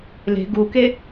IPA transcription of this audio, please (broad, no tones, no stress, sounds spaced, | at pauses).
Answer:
l e̤ ɡ u k e